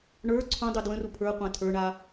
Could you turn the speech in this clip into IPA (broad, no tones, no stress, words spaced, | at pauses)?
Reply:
ɳə˞ ǀʰũdˤu dwə̃ru pʰə˞qʷã tʰə˞ɳa